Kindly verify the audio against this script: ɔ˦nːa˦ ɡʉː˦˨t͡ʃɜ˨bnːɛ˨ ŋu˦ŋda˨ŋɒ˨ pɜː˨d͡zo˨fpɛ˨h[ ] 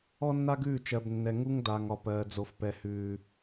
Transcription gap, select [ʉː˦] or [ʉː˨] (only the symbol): ʉː˨